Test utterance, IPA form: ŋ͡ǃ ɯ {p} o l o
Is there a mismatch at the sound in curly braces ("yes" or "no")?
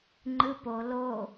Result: no